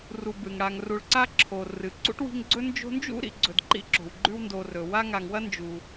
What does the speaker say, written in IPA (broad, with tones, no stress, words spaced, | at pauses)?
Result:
ru˨bɨ˩ŋɽa˨ŋ ru˨ɭǀa˥ǁʰo˩ rɨ˩ ǀṵ˥ʈwi̤˦ŋɡ͡ǀɵ˥ nd͡ʒo̤˦nd͡ʒṵ˥ ɾḭ˨ɡ͡ǀɵ˨d ǃḭ˥ǁo̤˩wɡ͡ǃʉ˦wndo˨ rɵ˩wa˥ ŋa˨ŋwɐ˥ nd͡ʒu˩